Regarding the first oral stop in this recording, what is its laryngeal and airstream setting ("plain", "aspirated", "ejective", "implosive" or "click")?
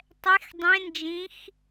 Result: plain